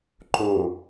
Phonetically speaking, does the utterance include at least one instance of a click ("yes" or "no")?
yes